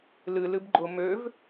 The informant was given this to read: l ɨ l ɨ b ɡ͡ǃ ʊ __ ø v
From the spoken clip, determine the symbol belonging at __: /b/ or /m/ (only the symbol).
m